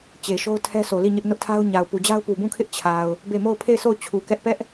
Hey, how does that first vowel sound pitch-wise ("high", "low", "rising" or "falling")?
low